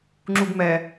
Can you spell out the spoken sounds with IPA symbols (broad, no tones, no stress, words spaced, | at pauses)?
ŋ͡ǁuɡmɛ